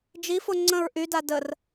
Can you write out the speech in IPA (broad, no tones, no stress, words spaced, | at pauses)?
d͡ʒifo ŋ͡ǀə̃ɹ ʔyda dər